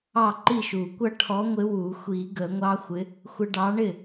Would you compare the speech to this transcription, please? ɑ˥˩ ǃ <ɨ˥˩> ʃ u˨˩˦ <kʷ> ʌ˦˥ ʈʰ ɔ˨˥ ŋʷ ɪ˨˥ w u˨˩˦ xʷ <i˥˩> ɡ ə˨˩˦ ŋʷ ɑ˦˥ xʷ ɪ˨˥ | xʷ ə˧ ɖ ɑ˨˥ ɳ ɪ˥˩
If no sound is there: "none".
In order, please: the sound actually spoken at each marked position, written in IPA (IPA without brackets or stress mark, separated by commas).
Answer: i˥˩, kʷ, i˨˩˦